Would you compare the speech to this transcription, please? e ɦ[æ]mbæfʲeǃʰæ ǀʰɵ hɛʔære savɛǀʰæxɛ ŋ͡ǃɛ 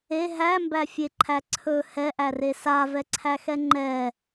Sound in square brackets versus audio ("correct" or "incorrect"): correct